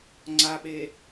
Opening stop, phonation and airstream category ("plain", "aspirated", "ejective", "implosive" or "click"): click